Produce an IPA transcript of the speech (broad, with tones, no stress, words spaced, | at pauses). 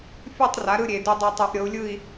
fʲu˥˨tˤ ra˩˥ɾɯ˥˨ ɾʲe˨˩du˧dˤe˧ tˤu˨˩˦ʔɾʲɤ˩˥u̯lʲɯ˥˨i̯